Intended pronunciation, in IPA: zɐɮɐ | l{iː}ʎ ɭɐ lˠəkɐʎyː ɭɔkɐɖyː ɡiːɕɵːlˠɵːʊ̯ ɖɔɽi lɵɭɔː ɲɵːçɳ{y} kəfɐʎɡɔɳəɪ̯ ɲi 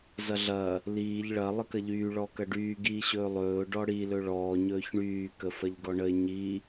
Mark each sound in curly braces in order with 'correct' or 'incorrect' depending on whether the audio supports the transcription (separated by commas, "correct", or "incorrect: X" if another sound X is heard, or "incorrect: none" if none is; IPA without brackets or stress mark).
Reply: correct, incorrect: yː